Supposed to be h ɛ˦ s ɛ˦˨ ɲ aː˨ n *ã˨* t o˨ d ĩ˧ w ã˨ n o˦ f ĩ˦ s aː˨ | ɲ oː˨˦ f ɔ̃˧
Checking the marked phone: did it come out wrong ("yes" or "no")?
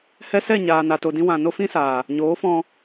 yes